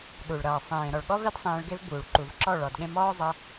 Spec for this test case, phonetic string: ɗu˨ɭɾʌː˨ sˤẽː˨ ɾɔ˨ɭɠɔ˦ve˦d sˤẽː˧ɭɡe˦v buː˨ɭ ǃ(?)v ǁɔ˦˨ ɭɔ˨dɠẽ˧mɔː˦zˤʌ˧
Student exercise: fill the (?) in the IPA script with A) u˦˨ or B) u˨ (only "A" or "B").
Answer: B